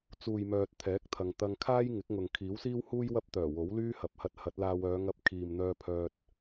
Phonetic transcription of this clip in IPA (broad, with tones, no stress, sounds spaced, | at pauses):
t͡s uː˨ j m œː˨ t̚ t̪ʰ ɛː˨˥ k̚ t̪ʰ ɐ˨ ŋ t̪ ɐ˧ ŋ kʰ aː˥ j ŋ ɪ˨˥ k̚ ŋ ʊ˨ ŋ kʰ iː˨˥ w s iː˥ w h uː˥ j w ɐ˥ p̚ t̪ œː˨˩ w o˨˥ w l yː˥ h ɐ˨ p̚ h ɐ˧ t̚ h ɐ˨˥ t̚ l aː˧ w œː˨˧ ŋ ɐ˧ p̚ kʰ iː˨ m n̪ œː˧ pʰ œː˧ t̚